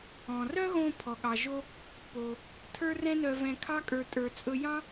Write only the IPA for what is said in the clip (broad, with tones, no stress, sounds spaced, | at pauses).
ɔ̃˩ r œ˥ ɣ õ˧ pʰ ɔ˩ ɠ ɑ˩ ʒ o˧ | p o˩ | tʰ ə˞˥ r ɛ̃˥ n œ˧ v ɛ̃˧ kʰ ɑ˥ kʼ ə˞˧ tʼ ə˞˧ t͡sʼ ɵ˥ j ɑ̃˥